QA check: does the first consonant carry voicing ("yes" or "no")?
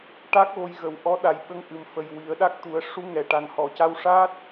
no